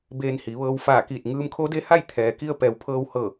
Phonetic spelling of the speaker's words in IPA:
beː˧nhi˩˧ʋɤː˧w faː˧˩kiː˧˩t̚ ŋɯː˧mkʰo˧˥de˧˥ha˥˨j t̪ʰɛː˩ki˧ə̯ pɛː˩˧wpʰɤː˧whɤː˧˩

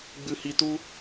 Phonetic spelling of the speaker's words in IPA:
ɡ͡bɨ˧hi˧tu˦

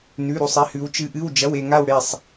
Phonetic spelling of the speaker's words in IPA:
nʉ˧˥˧ɾu˥˧sˤi˧˥hʉ˧˥w t͡ʃɨ˧˥ʔɨ˧˥˧w d͡ʒɐ˧˥˧we˥˧ŋa˥˧wɽe˥˧sˤ

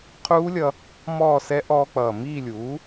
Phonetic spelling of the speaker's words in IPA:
qʰuː˦˥lʲʌ˧ | mɔː˥˧sɛ˦˥ ʔɔː˧k͡pʌː˨˩ miː˥˧lʲuː˩˥

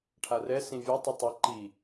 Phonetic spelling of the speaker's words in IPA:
ʈʰarɛ sĩvʲo tˤitˤi ǃi

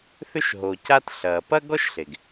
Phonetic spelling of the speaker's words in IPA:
θʏ˥ʃɦo˩ca˥t ɬɐ˩ pɐ˥ɡɔ˥ʃɬe˩ɡ

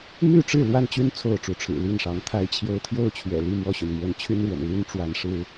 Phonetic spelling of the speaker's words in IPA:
my˥˨ʈ͡ʂɻ̩˥˨ lwa˥˨nt͡ɕy˥˨n t͡sʰo˥˨ʊ̯ʈ͡ʂu˨˦ʈ͡ʂʰɻ̩˨˩ li˥˨nʂɑ˨˦ŋt̪ʰa˦ɪ̯t͡ɕʰjo˦ʊ̯ t̪ʰjo˥˨ʊ̯t͡ɕʰɥɛ̰˨˩li˥˨ mwɔ˥˨ɕy˩n mwə˨˦n t͡ɕʰy˦nɻwə̰˨˩n ly˦nʈ͡ʂwa˨˦nʂɻ̩˦

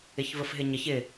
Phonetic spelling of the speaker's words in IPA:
ɪçvəfɦɪɲəç ɪ

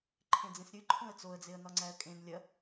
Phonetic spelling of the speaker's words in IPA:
ǃʰẽd͡zẽsɾʲɨ ǃʰõə̯t͡soə̯d͡zeə̯ nɒŋ͡ǀæə̯kʼẽn lʲɐ

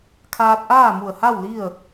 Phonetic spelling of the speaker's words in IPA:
kʰaː˧t̚ʔaː˥˨mu˧˩ə̯ha˥˨w li˥˨ə̯

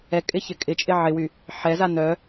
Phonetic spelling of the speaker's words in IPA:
ɛkʼɪçɪ kʼɪt͡ʃʼɪ ʕɪwy | ħɛza nœ

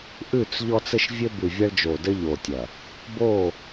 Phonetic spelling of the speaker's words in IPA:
ʔʉ˦˨t͡s ʎɔ˦t͡sɘ˦ʃvʲɘ˦ bʉ˨vʲɐ˦ɭd͡ʒo˨ dɘ˦ ʎo˨tʲɐ˨ | bo˦˨

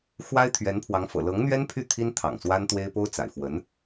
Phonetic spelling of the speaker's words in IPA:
xwa˥ɪ̯t̪ʰɥɛ˧˥npʰwɑ˧˥ŋfɤ̰˨˩ lɤ˧˥ŋn̪ɥɛ˥npʰy˥˩ t̪ʰi˥n t̪ʰɑ̰˨˩ŋswa˥nt̪we˥ɪ̯ po˥ʊ̯t͡sa̰˨˩ɪ̯fwə˧˥n

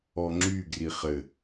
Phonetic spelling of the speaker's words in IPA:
ɔŋ͡ǁy ɡriχɘ

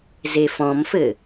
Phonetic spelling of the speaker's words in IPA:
zefɔ̃mfɘ

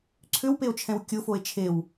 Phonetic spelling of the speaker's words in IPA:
ǀʰʏwpeo̯t͡ʃʰɛ̃w kʲʊfoe̯ t͡ʃʰew

